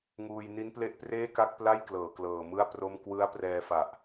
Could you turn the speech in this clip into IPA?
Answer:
ŋ uː˧ j n i˦˥ n p l e˦˥ ʔ p r eː˥˩ k a˥˩ k̚ p l a˥˩ j k l ɤː˩˦ k l ɤː˨˩ m ɯ˥˩ a̯ p r o˥˩ m k w ɯ˦˥ a̯ p r ɛː˧ f a˨˩ ʔ

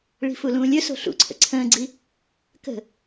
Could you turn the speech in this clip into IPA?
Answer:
ɭ i̤ f u l ũː lʲ ɵ s o̤ ɬ ṵ ǀʰ ə̰ ǀʰ ə̃ː ɡ͡ǀ i | k ə̤

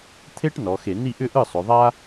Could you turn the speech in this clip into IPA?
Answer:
t̪ʰ e˥ ʈ n ɔ˩˧ x e˧˩˧ n i˥˩ ʔ ʏ˥˧ ʔ ɯ˥˩ sˤ ʏ˩˧ ðˤ a˥

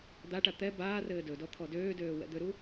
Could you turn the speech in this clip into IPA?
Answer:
d̪ a ʈ a t̪ ɛ b aː r ɘː d ɵ d ɔ t̪ʰ ɔ d øː d øː w ɛ̰ d̪ ʏ ɾ u

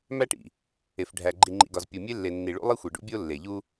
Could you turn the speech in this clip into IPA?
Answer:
m æ˦ ʈ ḭ˨ | e˨ f ɖʱ æ˨ ɡ͡ǃ i˨ ŋ͡ǃ ḭ˨ ɡ ɒ˨ z pʲ o˨ mʲ e˦ lː e˨ nː i˨ ɭ ṵ˦ lˠ i˦ xʷ e˨ ɖ ṵ˦ bʲ o˦ lː e˨ ʎ u˦

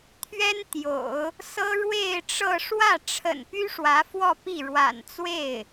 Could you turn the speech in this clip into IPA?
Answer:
t̪ʰ ɥ ɛ˥ n t̪ j o̰˨˩˦ ʊ̯ | s ɤ˥ ɻ w e˥˧ ɪ̯ ʈ͡ʂ ɤ˥˧ ʂ w ä˥˩ ʈ͡ʂʰ ə̰˨˩ n p y˥ ʂ w ä˧˥ f w ɔ˥˧ p i˥˩ ɻ w a̰˨˩ n t͡s w e˥˩ ɪ̯

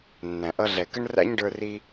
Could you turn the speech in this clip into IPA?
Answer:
nː æ̃˨ ʔ ʌ˧ ɮ ɛ˨ k ə˦ ɳ r æ̰˦ ɲ ɖ ə˞˧ r i˧

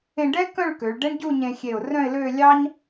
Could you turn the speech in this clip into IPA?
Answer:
ẽ˧ ɖ ɛ˥ k œ̃˥˧ ɭ k ø˩˧ ɭ ɖ ɛ˥ ɳ ɟ u˥˧ ɲ ẽ˧ xʲ e˧˩ ʊ̯ r œ̃˥˧ ɪ̯ l ø˥˧ lʲ ɑ˥ ɲ

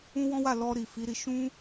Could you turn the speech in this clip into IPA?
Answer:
ũ˦ w ɔ̃˦ w a˦˨ l ɔ˧ ɾ i˨ f i˨˦ ɾ i˧ ʃ ũ˦

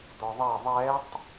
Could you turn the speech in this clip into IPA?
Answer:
d̪ ɔ ðˤ ɛ ðˤ ɛ tˤ

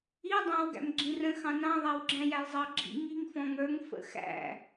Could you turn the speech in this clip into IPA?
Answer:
i dˤ ɑ̃ w ɡ æ̰ m ɡ͡ǁ ĩ r ə̃ x ɑ̃ n ɑ̃ ðˤ æ w ɡ͡ǁ æ̃ j æ j zˤ ɑ ɡ͡ǁ ḭ ŋ i ŋ f ɔ̃ ŋ ə˞ ŋ f ə̰ x æ̰

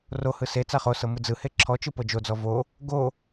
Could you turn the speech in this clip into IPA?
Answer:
r o h ɯ s e t͡s a χ o s ɤ m ɯ d͡z ɯ h e ǁʰ ɔ t͡ʃ ɯ p ɤ d͡ʒ o d͡z ɔ v o | ɡ o

